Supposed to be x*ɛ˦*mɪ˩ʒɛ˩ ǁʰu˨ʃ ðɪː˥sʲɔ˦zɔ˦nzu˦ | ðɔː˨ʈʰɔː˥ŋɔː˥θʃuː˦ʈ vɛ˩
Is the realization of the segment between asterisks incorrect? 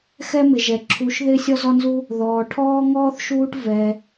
no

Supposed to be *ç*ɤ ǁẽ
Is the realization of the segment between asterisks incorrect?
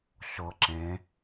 yes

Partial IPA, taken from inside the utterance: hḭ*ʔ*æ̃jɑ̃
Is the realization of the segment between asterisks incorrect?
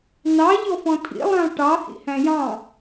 yes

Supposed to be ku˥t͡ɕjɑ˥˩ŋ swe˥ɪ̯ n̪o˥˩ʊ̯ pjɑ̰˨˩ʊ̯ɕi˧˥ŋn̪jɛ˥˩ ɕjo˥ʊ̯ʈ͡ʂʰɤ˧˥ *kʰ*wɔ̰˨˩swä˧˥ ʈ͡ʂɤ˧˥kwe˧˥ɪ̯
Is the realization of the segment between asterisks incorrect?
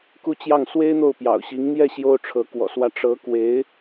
yes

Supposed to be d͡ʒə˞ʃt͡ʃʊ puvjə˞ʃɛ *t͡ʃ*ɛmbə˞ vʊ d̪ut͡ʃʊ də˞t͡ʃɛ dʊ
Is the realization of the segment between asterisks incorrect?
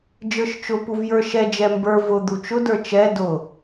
yes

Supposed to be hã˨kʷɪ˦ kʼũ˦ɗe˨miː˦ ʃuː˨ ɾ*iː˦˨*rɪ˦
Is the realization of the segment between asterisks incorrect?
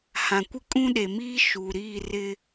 no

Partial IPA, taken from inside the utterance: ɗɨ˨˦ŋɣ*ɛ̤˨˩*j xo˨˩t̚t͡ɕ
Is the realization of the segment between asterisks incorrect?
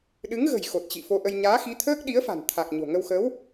yes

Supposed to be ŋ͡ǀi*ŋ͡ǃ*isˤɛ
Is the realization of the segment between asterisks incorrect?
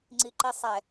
yes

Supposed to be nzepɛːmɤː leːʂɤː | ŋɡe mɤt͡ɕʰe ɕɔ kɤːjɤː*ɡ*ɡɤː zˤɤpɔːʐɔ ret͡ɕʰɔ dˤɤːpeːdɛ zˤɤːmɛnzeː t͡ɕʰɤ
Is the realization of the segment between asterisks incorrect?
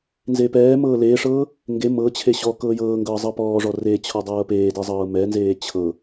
yes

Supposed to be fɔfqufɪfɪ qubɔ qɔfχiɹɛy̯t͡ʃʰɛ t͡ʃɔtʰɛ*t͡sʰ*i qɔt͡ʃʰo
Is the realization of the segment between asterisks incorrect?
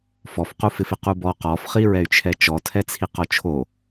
no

